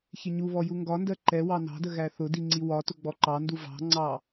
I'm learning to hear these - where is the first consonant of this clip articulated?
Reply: palate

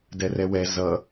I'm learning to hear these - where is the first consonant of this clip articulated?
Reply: tongue tip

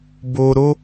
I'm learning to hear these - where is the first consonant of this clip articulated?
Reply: lips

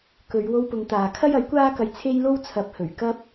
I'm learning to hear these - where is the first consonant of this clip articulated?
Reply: velum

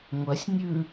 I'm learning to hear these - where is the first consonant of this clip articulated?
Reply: velum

